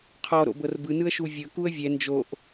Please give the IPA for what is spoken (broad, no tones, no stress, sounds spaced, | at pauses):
qʰ ɔ ɾ o̰ b ɤ r b ɯ n ɯ ə̯ ʃ u vʲ ɤ k u ə̯ vʲ ɛ n d͡ʒ o ʔ